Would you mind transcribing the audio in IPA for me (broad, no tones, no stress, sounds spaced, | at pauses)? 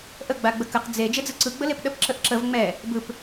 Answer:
ʔ ə ɡ͡b a ɡ͡b ə k ə q d͡z e d͡ʒ e d͡z ɯ ǀ ɯ ɡ͡b ə l e p ɗ ə p ǁ ə ʔ ǁ ə v ŋ͡m ɛ | b ɯ p